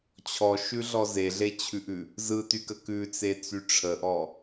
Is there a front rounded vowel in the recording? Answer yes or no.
yes